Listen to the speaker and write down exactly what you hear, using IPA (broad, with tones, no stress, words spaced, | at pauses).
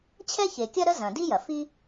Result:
t͡ɕʰɛ˥çe˩kʲɐ˥ ɾə˥zɐ̃˩di˥jɐ˩ fi˥